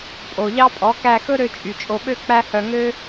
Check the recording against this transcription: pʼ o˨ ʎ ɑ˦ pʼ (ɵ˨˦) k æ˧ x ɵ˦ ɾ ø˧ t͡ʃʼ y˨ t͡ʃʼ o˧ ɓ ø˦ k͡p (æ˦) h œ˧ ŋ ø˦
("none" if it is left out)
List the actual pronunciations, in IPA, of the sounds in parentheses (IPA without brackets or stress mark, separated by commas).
ɔ˨˦, æ˦